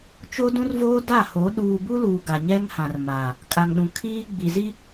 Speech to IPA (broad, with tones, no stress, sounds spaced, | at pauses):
t͡ʃ o˦ d ũ˦ r v oː˦ d a˦˨ h o˨˦ ɗ uː˨ b u˦ l uː˨ ɡ a˨ ɲ ɛ˦ ŋ h ã˨ r m aː˨ | kʼ a˨ ŋ ɗ ũ˨ kʰ iː˦ ɡ͡b i˨ z i˦